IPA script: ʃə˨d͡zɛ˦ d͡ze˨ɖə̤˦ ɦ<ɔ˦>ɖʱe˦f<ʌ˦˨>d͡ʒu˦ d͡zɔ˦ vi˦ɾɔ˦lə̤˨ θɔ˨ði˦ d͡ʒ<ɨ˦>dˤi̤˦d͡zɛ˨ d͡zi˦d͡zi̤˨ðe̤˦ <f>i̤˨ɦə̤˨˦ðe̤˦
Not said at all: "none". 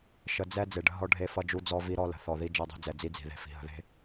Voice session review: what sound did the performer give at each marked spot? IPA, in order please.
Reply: ɔ˦, ʌ˦, ɛ˦, f

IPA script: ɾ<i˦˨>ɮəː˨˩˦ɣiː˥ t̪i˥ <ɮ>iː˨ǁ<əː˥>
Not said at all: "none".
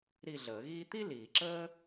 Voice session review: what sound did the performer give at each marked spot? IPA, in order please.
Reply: i˦˨, l, əː˥

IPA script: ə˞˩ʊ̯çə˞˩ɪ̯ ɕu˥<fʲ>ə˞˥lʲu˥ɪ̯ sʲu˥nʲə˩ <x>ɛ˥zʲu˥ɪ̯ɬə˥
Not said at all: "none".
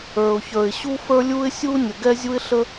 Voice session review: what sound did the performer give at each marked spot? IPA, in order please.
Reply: f, ɡ

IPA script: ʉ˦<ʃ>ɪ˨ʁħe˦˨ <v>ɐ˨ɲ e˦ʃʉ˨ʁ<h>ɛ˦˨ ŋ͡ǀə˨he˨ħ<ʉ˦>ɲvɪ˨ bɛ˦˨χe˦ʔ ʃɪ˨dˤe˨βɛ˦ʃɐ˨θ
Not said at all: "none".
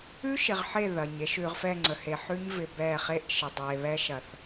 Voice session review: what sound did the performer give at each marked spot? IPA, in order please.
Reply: ʃ, ð, f, ʉ˦

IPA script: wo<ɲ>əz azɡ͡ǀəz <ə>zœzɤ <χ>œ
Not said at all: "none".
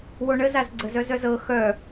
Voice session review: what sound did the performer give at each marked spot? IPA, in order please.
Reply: ɳ, œ, x

